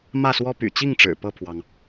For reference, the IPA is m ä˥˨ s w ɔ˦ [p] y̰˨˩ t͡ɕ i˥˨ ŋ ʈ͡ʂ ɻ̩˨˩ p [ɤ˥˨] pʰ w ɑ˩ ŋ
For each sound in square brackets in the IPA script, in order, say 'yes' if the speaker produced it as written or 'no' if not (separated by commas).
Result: yes, yes